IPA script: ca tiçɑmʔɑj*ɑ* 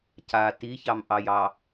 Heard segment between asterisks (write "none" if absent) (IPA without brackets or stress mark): ɑ